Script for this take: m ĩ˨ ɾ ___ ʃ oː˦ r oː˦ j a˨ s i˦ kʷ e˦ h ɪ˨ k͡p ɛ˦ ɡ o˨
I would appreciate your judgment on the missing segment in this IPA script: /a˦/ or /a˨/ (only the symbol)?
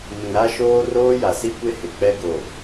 a˦